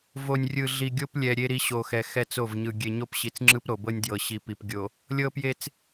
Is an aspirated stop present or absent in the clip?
absent